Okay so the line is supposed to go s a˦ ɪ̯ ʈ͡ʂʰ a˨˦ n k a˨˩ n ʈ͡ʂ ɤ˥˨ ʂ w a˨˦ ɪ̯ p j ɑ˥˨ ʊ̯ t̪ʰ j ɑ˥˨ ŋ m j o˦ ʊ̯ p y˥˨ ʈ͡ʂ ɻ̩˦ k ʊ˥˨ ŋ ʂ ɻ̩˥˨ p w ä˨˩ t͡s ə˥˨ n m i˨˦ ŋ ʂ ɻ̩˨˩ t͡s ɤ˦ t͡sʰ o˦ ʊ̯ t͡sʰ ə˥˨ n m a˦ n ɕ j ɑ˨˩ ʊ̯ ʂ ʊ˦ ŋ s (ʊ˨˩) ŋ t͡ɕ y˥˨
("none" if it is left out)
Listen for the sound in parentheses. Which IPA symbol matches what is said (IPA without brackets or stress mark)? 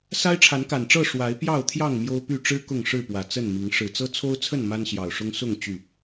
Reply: ʊ˥˨